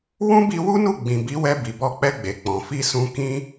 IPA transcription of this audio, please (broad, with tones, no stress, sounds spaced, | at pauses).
w ũ˦ b i˧ w u˦ n u˦˨ ɡ͡b ĩ˨ b i˨˦ w ɛ˧ b i˨ b ɔ˧ k͡p ɛ˧ ɡ͡b e˨ k͡p ɔ̃˨ f i˧ s ũ˧ k ĩ˦